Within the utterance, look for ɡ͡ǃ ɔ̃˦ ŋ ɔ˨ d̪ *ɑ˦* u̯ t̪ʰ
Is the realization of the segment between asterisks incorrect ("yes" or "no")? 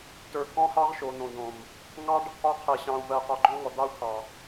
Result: no